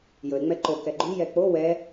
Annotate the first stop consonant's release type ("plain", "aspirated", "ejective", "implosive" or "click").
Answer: click